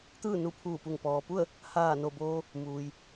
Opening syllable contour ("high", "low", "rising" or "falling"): falling